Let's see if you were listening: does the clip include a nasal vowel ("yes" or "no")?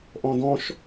yes